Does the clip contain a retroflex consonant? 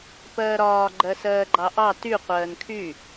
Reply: no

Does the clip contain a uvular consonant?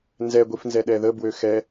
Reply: no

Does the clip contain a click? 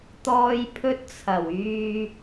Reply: no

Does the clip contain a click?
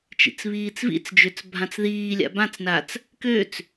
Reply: no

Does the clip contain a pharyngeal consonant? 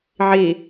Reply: yes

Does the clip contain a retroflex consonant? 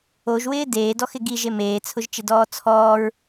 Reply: no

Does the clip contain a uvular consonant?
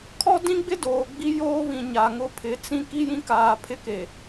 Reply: no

